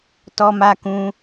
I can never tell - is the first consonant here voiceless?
yes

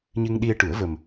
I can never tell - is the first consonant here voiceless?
no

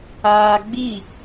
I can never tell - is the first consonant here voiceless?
no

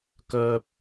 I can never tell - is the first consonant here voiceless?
yes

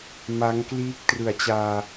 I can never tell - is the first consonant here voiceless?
no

